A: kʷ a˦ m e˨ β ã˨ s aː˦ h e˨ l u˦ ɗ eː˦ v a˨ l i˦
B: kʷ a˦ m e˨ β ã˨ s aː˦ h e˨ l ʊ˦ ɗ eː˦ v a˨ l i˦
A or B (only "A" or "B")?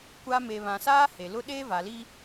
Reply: B